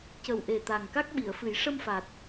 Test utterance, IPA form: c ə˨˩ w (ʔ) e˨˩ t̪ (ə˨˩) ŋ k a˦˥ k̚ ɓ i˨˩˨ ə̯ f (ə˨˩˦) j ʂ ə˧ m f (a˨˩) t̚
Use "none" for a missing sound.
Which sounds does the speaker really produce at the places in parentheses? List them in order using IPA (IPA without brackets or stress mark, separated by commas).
ʔ, a˨˩, ɨ˨˩˦, a˨˩